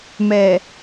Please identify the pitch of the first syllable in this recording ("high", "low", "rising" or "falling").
low